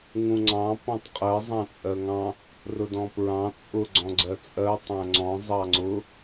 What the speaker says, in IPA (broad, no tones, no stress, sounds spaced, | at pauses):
ŋ ũ ŋ͡ǀ ɑ̃ p ɔ̃ tˤ qʼ ɜ zˤ ɑ̃ t͡sʼ ɜ ŋ ɑ̃ | r ʊ d ɔ̃ p ɹ ɑ̃ t͡sʼ ʊ ɡ͡ǀ ɔ̃ ɡ͡ǀ ɜ t͡sʼ ɜ tˤ æ̃ ŋ͡ǀ ɔ̃ zˤ ɑ ŋ͡ǀ ʊ